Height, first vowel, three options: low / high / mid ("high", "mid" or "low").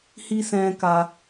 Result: high